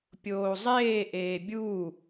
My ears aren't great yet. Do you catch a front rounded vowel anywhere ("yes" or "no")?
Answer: no